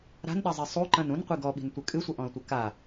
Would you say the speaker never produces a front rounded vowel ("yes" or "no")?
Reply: yes